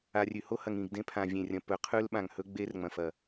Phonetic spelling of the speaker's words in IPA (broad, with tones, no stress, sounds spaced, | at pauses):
a˨ rʲ ʉ˨ h o˦ h ɐ˨ ŋ ĩ˨ ɡ d ẽ˦ pʰ ã˨ vʲ ẽ˨ rʲ ɐ̃˨ p ɵ˨ qʰ ʉ˦ l ɓ ã˨ ŋ h ɵ˦ ɡ͡b e˦ r ŋ͡m ɐ̃˨ f ɐ˨